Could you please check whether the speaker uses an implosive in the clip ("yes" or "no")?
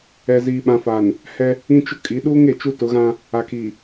yes